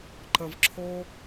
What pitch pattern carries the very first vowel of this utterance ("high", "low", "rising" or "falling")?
low